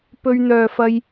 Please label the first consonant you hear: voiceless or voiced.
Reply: voiceless